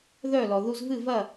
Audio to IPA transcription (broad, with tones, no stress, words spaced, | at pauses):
ðœ˥˩lɔ˩ ðu˧zvɨ˥˩vɐ˥˩